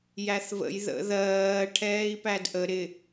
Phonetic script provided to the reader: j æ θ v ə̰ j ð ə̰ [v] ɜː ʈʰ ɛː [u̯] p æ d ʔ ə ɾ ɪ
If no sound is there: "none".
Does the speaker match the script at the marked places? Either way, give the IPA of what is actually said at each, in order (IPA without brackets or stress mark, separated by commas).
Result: ð, i̯